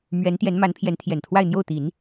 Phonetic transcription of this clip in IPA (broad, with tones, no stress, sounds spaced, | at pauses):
m ɥ ɛ˧˥ n t̪ j ɛ˧˥ n m a˧˥ n pʰ j ɛ˧˥ n t̪ʰ j ɛ˨˩ n t̪ʰ w a˥˧ ɪ̯ n̪ j o˥˩ ʊ̯ t̪ i˨˩˦ n